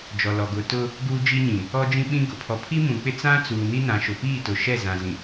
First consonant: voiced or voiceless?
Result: voiced